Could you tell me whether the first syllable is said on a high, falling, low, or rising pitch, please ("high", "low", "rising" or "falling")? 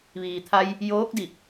low